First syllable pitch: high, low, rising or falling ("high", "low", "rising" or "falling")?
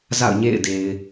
falling